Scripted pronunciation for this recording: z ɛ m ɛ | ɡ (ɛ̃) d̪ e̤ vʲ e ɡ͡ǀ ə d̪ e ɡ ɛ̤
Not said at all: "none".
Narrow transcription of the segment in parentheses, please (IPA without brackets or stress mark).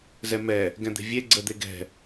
ɛ̃